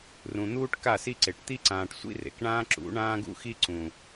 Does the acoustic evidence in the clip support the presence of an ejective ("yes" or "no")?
no